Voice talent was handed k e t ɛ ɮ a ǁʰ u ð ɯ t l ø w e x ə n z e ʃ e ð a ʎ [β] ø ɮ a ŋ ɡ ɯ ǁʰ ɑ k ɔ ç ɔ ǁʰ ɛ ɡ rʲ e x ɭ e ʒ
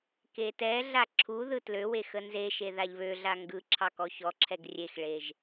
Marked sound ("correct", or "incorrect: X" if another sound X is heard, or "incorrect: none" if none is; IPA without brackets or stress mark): correct